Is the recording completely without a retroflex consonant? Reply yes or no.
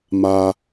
yes